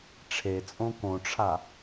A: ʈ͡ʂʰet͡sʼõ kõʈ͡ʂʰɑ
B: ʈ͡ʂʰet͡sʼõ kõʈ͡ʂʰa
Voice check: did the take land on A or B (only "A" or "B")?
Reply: B